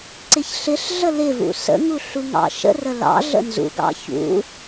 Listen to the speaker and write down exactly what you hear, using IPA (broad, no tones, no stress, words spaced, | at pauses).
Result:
ǀɪçɬɪɬɮə lɪvṵ sə̰ŋu ɬuŋɑ̰ʃə̰rə lɑ̰ ɮə̰nzṵɡɑ̰ çṵ